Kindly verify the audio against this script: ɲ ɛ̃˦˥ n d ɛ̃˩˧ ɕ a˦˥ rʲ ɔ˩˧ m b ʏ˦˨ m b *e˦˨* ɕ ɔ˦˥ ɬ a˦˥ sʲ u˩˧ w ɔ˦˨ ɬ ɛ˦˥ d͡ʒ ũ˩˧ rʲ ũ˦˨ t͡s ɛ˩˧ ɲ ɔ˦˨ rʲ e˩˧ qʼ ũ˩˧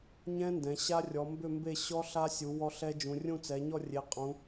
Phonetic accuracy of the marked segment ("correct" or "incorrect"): correct